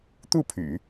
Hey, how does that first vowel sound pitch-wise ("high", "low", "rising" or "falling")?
falling